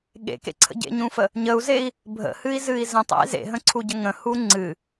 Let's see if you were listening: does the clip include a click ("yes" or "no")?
yes